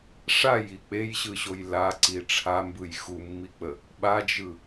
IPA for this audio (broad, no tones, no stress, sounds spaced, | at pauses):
ʂ a j i k͡p e j ɕ ɯ ɕ o j l a ǀ i ʈ͡ʂʰ a m b ɯ j x u mː i k͡p ə | ɓ a d͡ʒ ɯ